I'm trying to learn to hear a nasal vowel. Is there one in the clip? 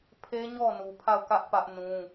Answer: yes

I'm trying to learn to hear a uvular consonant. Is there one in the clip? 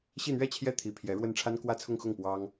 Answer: no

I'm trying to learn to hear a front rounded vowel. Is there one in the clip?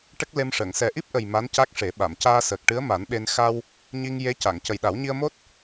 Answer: no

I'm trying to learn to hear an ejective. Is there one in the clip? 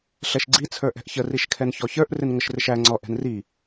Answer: no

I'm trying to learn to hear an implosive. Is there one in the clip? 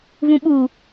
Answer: yes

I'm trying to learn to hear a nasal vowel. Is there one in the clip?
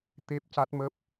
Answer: no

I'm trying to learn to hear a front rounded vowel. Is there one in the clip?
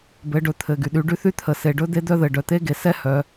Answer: yes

